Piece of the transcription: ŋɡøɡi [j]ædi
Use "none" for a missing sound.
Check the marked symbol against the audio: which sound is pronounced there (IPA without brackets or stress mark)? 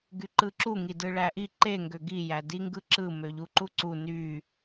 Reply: j